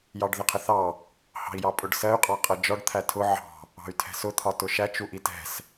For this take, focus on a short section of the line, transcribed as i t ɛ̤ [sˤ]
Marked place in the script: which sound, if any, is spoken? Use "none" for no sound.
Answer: s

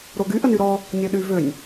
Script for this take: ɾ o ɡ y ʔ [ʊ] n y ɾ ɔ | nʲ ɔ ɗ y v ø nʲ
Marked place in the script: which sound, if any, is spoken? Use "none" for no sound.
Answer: ə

